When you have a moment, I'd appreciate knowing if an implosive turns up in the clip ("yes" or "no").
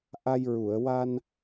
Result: no